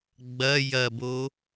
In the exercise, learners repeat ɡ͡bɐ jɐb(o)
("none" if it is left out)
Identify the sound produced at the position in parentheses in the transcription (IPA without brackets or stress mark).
o